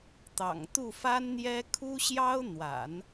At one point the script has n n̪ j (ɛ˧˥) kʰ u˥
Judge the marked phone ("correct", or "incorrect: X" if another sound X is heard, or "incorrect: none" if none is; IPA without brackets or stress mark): incorrect: ɛ˥